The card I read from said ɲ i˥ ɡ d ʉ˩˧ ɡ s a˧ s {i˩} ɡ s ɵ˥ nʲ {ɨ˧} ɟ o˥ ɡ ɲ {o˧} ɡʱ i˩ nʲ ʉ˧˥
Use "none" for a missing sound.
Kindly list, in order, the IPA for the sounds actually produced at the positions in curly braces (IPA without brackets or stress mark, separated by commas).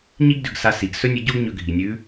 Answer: i˩, ʉ˧, ɵ˧